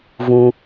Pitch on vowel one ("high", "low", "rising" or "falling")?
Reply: high